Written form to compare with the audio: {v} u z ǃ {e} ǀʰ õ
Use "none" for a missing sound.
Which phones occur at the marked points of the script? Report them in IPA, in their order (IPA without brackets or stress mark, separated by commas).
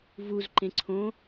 v, ẽ